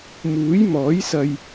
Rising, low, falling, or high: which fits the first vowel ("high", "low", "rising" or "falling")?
rising